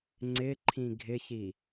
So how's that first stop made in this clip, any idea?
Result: click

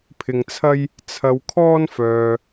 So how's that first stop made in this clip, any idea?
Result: aspirated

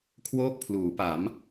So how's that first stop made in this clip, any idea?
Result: aspirated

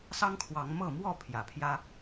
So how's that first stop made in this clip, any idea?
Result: aspirated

